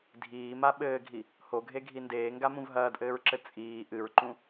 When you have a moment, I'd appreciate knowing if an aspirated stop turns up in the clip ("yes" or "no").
no